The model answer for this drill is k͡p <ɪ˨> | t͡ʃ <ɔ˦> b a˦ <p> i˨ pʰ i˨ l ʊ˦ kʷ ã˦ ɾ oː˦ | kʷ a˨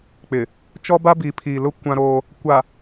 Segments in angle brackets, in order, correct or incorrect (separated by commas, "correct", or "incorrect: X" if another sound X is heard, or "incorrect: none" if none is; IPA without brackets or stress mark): correct, correct, incorrect: b